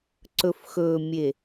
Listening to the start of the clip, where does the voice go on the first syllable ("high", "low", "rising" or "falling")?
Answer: low